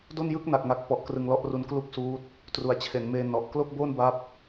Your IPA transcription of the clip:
do˥˩njɯ˥˩k̚na˨˩k̚ ŋa˨˩k̚pɔ˨˩ʔ krɯ˧ŋlɔ˥˩ʔru˦˥n klu˥˩k̚suː˦˥t̚ | tru˩˦a̯t͡ɕʰe˩˦nmeː˧ nɔ˨˩ʔ klo˥˩k̚bo˥˩nba˦˥p̚

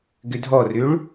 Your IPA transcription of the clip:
ɡʏdʱɔrʏɭ

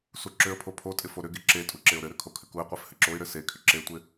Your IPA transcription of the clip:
suǁʏə̯pʰo pʰotʼɪ foɾʏɡe ǁe tʼuǁeʊ̯ɾɘɾʏ kʰokʰʏkuɪ̯qʷef hɘǁoɪ̯ɾɘ se kʰʏǁetʷɪ

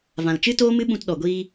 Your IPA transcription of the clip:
vã˨lt͡ʃɨ˦ toː˦mɨ˦ɓũ˧t ɗɔ˨ɡʷiː˧

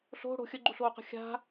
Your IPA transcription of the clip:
ɬo̤ ɽo̤ xʲəɡ͡ǃuɬoːqə̤ xʲa̤

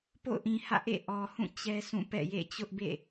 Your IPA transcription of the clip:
po̰˦˨ʊ̯ʔĩ˨hä̰˦˨ʔḛ˦˨ ʔɔ˨hũ˦˨ t͡ɕɛ˦sʰũ˦˨pɛ̰˦˨jḛ˦˨ t͡ɕʊ˦ʔbḛ˦˨

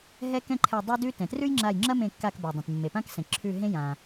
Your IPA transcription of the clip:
ɦɛ˦kɛ̃˦ǃʰɛ˧˩ dˤe˦dʉ˦ tɛ̃˩trʉ˦jŋ͡ǁa˧˩j ŋ͡ǁɐ˦mẽ˧˩kːa˧˩kba˩ dˤẽ˩tmːe˩pã˦ksɛ̃˩ ǁʰʉ˧˩ ɦẽ˦jã˩

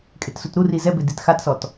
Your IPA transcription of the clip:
kʼetsutɾuri zɛbɪ ditxatsɔt

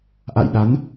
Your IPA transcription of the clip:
ʔa̰˧˨jɗa˨˦n

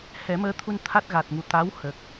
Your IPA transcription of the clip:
hɛ˨˩˦məː˧˥t̪ʰu˧n t̪ʰa˦˥t̚ɣa˨˩t̚ŋu˨˩ t̪a˧˥w hə˨˩k̚

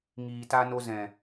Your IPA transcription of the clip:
ŋiː˨ta˧no˧ zɛ̃˨

